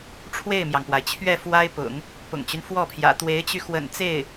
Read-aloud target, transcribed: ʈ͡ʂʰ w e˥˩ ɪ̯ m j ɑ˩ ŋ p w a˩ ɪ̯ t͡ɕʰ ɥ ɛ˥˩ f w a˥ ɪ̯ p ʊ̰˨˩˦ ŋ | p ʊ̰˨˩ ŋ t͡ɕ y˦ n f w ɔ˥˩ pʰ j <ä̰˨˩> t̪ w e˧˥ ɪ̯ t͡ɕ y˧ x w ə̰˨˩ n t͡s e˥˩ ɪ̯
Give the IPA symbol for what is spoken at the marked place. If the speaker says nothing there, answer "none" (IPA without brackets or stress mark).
ä̰˨˩